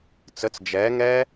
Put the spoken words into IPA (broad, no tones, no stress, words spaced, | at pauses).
t͡sət͡s d͡ʒɛː ŋɛː